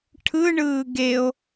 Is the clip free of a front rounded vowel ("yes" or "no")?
yes